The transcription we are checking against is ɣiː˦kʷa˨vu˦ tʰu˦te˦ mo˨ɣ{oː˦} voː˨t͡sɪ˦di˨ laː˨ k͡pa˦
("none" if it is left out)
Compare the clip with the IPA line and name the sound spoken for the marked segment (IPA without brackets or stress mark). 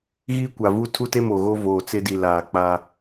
o˦